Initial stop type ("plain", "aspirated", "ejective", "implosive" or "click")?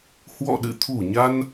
implosive